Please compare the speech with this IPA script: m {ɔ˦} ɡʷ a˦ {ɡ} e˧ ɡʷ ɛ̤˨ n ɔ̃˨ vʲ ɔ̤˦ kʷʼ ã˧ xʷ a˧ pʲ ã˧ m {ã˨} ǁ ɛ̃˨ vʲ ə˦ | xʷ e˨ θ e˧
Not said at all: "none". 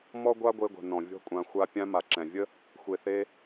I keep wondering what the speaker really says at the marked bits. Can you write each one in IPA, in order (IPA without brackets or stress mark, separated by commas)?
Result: ɔ˦, ɡʷ, a˨